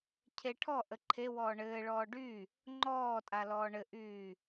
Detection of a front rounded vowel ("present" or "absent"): present